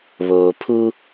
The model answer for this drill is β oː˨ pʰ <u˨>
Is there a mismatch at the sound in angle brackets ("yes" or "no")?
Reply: yes